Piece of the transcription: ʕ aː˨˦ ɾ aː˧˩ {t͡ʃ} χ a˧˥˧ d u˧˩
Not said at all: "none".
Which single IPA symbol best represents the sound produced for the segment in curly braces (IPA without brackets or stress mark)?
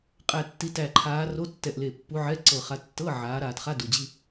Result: t